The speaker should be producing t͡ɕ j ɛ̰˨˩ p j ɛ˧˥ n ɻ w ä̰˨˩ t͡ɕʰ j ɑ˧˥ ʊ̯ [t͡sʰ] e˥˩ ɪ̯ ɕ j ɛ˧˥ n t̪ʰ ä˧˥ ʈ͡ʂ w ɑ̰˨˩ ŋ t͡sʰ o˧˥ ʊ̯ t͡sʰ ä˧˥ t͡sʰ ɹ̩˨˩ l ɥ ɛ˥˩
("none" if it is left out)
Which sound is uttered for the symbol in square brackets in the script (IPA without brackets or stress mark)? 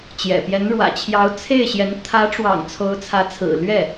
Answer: t͡sʰ